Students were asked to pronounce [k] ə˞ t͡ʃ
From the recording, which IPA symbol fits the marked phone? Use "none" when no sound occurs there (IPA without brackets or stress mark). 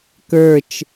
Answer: k